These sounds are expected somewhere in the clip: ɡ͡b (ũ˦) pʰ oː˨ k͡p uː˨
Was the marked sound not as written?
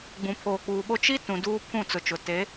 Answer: yes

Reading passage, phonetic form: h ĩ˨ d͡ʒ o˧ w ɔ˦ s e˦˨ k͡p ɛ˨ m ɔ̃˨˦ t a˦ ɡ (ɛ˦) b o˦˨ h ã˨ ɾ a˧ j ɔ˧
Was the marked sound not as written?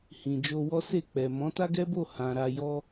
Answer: no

